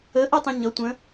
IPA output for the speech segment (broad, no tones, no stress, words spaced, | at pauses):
ə ʔətˤɛ̃ ɲʌ tʷə̃